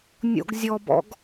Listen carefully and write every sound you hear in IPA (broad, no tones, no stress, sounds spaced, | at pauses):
nʲ o̰ ɡ zʲ ɔ b ɔ̰ ɡ